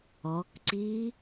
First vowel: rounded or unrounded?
rounded